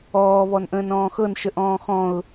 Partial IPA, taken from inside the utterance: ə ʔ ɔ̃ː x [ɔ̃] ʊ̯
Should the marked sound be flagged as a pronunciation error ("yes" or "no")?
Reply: no